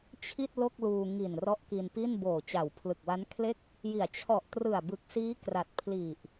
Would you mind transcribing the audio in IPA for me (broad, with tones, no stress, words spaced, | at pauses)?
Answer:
t͡ɕʰi˥˩t̚ lo˥˩k̚luː˧ ŋi˨˩nrɔ˦˥ʔki˧npi˥˩n boː˨˩t͡ɕa˨˩w pʰlɯ˨˩k̚wa˦˥nkʰle˥˩k̚ | ji˩˦a̯ t͡ɕʰɔ˨˩ʔtrɯ˨˩a̯bɯ˨˩k̚siː˦˥ kra˨˩t̚pʰli˨˩ʔ